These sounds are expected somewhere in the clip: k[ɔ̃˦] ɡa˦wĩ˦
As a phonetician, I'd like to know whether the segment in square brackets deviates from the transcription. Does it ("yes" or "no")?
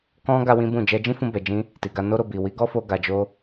no